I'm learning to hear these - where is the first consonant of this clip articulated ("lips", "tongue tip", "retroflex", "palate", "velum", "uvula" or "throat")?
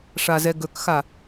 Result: retroflex